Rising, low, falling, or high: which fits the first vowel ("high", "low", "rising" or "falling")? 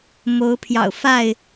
rising